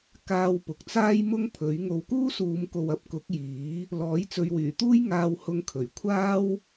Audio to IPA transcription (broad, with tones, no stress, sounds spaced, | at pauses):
k aː˧ w p ʊ˨ k̚ t͡s aː˥ j m ʊ˥ ŋ pʰ ɵ˨˥ ɥ ŋ o˨˧ w k uː˥ s uː˨˧ m k o˨ w ɐ˨ p̚ k ʊ˨˥ k̚ j iː˨˥ | l ɔː˨˥ j t͡s ɵ˨˧ ɥ w yː˨˩ t̪ uː˥ j ŋ aː˧ w h ʊ˧ ŋ kʰ ɵ˨˩ ɥ kʷʰ aː˥ w